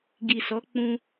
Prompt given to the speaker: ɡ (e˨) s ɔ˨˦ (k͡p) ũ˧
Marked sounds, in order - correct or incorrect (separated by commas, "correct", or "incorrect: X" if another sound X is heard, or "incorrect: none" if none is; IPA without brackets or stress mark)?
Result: incorrect: i˨, correct